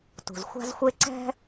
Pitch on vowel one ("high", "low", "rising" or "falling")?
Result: low